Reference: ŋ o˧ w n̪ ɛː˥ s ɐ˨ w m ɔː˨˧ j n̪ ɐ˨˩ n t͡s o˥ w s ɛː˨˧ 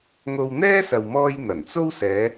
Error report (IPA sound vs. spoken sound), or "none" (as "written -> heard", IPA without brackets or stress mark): ɔː˨˧ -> ɔː˧